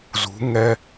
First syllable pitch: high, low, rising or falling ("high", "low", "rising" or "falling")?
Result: rising